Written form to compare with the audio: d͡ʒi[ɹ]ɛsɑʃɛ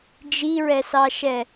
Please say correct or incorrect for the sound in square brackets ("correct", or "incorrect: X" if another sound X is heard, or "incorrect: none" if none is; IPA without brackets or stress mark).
correct